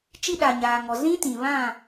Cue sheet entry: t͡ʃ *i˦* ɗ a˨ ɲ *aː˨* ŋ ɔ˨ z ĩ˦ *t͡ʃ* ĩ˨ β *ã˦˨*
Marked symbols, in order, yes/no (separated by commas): yes, yes, no, yes